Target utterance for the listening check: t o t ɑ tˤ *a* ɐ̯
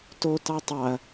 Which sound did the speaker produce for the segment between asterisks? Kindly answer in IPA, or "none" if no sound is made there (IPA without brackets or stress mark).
ɑ